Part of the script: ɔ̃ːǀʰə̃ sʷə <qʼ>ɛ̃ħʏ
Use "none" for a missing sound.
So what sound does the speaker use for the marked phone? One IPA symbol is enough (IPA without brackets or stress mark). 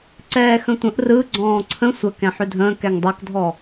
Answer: k